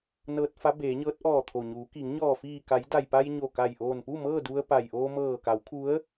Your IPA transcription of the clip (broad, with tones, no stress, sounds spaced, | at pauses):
n ɤː˧ t̚ f a˧˥ b eː˩˧ ɲ ɤː˧˥ t̚ ʔ ɔː˧˩ t̪ʰ o˩ ɲ uː˩˧ k iː˩˧ ŋ ɲ ɔː˧˩ f iː˧˩ k a˩˧ j d a˩ j p a˧ j ɲ o˧˩ k a˧˩ j ʔ oː˧˩ n p u˥˨ m ɤː˥˨ d u˧ ə̯ p a˩ j ʔ oː˧ m ɤː˧˩ k a˩˧ w kʰ u˧˥ ə̯